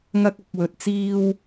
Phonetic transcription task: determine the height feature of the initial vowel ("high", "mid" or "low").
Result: low